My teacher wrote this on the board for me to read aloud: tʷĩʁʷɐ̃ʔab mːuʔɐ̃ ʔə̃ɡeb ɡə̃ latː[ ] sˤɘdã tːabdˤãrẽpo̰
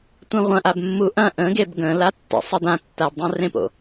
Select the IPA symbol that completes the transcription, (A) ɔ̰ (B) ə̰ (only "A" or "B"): B